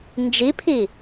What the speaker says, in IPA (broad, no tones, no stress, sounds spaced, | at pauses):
n d͡ʒ i pʰ i